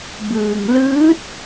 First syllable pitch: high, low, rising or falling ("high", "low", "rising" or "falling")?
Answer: low